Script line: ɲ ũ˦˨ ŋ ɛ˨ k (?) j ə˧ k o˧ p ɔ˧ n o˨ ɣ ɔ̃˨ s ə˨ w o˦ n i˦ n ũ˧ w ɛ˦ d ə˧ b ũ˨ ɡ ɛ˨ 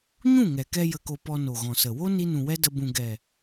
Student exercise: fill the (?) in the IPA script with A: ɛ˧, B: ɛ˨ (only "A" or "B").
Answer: A